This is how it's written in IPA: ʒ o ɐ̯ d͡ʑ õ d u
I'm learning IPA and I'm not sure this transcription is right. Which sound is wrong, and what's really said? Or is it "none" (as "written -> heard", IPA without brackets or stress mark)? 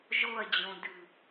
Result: u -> ʉ